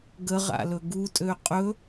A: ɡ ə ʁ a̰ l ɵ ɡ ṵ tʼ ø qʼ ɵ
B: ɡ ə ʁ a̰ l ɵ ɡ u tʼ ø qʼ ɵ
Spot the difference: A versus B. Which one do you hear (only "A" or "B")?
B